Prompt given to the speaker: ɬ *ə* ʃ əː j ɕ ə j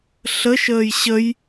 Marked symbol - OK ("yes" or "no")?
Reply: yes